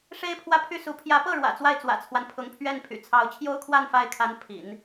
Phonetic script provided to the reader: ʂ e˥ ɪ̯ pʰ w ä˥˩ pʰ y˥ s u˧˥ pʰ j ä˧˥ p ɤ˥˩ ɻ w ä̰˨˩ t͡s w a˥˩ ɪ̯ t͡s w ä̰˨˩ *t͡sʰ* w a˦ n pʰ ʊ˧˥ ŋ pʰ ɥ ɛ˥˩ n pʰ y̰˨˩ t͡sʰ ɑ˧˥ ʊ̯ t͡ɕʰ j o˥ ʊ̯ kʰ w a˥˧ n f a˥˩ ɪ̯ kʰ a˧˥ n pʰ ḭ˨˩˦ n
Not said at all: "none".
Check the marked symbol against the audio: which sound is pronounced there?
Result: t͡sʰ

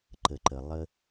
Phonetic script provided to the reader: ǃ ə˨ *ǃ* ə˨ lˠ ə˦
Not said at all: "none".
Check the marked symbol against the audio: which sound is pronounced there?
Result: ǃ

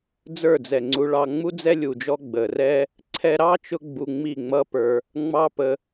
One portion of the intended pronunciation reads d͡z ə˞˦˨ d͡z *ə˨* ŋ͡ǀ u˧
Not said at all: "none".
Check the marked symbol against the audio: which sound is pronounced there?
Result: ɛ˨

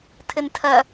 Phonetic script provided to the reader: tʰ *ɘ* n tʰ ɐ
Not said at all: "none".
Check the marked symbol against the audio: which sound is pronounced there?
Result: ɘ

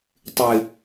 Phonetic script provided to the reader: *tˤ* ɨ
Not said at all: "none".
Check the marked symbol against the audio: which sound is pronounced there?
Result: tˤ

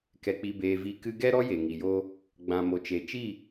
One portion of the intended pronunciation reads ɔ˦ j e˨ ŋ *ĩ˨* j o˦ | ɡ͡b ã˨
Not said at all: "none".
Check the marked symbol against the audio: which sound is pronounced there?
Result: i˨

